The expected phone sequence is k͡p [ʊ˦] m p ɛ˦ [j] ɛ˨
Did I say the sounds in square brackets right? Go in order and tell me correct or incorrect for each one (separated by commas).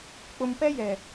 incorrect, correct